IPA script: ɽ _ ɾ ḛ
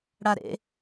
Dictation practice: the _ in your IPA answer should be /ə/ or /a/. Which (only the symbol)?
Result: a